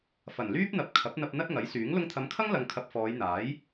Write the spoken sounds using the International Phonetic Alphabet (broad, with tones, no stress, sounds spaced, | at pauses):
f ɐ˨˩ n l yː˥ p̚ n̪ ɐ˨ p̚ kʰ ɐ˨˥ p̚ n̪ ɐ˧ p̚ n̪ ɐ˥ t̚ ŋ ɐ˨˥ j s yː˨˥ ŋ l ʊ˧ ŋ t̪ʰ ɐ˨˧ m kʰ ɐ˥ ŋ l ɐ˧ ŋ kʰ ɐ˧ p̚ f ɔː˨˧ j n̪ aː˨˥ j